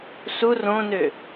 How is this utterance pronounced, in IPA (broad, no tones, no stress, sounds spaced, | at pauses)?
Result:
s u r õ n ø